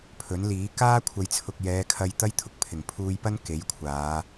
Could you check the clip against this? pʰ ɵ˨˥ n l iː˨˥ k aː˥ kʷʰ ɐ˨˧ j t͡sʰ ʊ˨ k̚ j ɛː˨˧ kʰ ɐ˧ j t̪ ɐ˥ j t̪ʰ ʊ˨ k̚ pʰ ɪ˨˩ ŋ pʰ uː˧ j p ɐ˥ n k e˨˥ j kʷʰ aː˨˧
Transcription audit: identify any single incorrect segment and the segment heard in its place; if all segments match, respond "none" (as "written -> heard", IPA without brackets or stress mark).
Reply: none